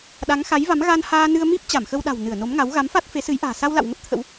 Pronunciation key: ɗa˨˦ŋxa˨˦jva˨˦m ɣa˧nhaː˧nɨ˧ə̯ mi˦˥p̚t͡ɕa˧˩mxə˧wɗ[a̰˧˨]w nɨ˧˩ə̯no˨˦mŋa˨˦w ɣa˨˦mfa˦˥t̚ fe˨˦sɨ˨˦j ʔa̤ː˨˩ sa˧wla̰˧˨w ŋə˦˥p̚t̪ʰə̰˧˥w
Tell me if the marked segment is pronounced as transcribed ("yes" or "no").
no